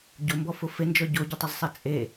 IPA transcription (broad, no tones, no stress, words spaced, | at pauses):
ɟombɔfʊ fend͡ʒɔ ɟoɟetˤʊzsˤe t͡sʼe